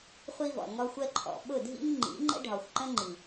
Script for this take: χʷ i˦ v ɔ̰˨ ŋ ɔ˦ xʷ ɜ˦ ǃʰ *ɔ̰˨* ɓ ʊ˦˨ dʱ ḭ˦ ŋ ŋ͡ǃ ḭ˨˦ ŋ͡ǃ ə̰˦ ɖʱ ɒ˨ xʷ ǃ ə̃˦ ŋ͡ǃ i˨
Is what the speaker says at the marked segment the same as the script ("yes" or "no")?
yes